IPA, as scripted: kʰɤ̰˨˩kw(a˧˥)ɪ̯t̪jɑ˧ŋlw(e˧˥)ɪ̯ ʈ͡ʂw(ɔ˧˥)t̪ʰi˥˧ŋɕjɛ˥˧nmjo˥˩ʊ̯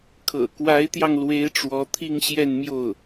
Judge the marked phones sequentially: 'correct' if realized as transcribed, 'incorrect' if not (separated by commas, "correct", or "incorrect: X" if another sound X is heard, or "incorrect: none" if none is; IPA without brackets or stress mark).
correct, correct, correct